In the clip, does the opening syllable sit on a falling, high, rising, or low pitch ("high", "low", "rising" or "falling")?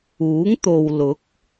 rising